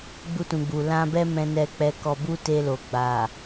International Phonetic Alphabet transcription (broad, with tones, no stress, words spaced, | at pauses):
ɡ͡bu˧tũ˨ɡ͡bu˨ lã˧bɛ˦ mɛ̃˧nɛ˧k͡pɛ˧kɔ˧ bu˦te˧lo˨ ɡ͡ba˨